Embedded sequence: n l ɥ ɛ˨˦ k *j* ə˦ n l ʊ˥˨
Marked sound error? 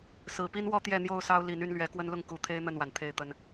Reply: yes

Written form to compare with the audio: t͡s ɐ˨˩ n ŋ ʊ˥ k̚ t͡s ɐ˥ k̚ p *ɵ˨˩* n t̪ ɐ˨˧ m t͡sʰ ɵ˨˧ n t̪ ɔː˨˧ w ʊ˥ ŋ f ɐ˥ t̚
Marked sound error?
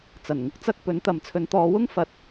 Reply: yes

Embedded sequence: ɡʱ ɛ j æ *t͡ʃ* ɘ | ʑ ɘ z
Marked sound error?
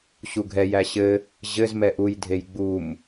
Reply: yes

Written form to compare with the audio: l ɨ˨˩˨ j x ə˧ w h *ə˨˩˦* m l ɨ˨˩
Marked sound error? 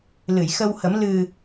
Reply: no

